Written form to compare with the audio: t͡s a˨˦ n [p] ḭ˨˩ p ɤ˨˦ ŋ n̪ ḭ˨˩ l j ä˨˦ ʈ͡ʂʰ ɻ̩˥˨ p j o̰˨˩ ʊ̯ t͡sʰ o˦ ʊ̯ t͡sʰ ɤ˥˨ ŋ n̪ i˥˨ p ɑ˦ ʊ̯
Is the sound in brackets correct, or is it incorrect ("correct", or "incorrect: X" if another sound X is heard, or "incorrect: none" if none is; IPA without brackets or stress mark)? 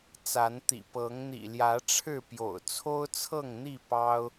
incorrect: t̪